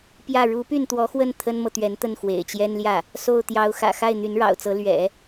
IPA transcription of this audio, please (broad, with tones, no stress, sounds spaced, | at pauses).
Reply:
p j ä˥˩ ɻ u˧˥ p y˥˩ n t̪ w ɔ˧˥ x w ə˥˩ n t̪ʰ ə˥ n m ɤ˨ t̪ ɥ ɛ˧˥ n t̪ ə˥˩ n x w ḛ˨˩ ɪ̯ t͡ɕ j ɛ˥ n l j ä˥˩ | s o˥˩ ʊ̯ t̪ j ɑ˧˥ ʊ̯ x ä̰˨˩ x a˥˩ ɪ̯ n̪ y˧˥ n ɻ ɑ̰˨˩ ʊ̯ t͡s ɤ˧˥ l ɥ ɛ̰˨˩˦